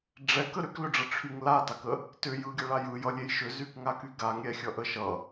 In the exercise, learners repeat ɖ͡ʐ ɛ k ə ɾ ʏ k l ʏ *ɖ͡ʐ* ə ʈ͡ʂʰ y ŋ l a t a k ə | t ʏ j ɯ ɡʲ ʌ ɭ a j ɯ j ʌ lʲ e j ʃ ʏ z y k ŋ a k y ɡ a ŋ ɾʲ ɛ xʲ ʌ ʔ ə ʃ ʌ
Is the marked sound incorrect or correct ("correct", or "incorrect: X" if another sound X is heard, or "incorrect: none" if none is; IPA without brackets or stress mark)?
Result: correct